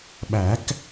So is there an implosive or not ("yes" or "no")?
yes